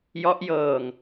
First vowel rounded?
yes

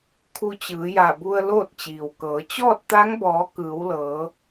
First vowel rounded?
yes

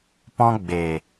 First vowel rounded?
yes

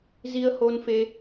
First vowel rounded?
no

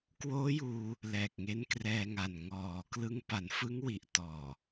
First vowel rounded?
yes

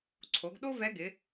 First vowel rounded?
yes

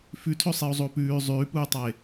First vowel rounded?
yes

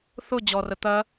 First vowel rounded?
yes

